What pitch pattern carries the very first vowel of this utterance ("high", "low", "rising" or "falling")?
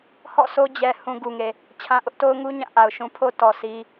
falling